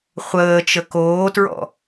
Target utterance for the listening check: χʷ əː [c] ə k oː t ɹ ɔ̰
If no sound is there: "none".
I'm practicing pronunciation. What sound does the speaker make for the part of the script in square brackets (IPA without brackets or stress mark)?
t͡ʃ